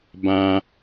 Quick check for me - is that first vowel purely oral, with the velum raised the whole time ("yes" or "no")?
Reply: no